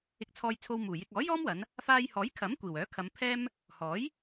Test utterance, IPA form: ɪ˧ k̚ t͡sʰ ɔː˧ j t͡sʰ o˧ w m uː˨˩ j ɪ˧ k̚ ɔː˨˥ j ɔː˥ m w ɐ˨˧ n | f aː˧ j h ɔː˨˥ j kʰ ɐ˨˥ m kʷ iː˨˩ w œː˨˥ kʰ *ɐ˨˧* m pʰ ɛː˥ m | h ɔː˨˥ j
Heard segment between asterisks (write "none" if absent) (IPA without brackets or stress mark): ɐ˨˧